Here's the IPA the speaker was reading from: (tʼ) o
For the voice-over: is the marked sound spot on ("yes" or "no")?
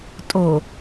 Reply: yes